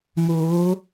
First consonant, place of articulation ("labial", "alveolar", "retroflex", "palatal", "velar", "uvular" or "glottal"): labial